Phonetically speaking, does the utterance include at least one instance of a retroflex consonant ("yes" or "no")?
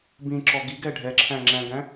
yes